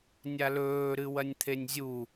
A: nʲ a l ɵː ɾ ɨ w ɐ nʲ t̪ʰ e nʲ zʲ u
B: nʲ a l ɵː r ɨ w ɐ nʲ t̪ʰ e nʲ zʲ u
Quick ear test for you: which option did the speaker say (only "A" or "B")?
A